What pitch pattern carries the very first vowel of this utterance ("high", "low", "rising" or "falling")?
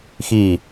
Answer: falling